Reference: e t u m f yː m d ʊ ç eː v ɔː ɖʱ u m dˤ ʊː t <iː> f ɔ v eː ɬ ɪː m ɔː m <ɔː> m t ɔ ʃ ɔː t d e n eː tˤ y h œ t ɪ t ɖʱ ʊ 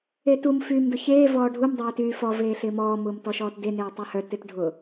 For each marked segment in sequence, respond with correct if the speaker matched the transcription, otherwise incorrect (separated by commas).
incorrect, incorrect